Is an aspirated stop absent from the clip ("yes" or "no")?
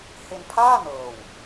no